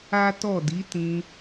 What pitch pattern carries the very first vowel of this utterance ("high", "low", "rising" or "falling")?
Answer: high